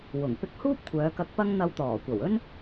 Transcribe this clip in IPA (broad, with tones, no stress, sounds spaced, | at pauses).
w ʊ˨˩ ŋ p ɪ˧ k̚ h uː˥ p̚ kʷʰ œː˨˧ k ɐ˧ k̚ p ɐ˥ ŋ n̪ ɐ˧ w t̪ ɔː˨˩ kʷ ɐ˨˩ w ɵ˥ n